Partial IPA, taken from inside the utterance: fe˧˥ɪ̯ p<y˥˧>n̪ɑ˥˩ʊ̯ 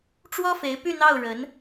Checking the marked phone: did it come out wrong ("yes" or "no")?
no